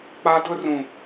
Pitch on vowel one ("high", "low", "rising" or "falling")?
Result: high